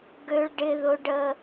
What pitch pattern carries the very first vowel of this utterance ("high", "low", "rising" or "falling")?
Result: high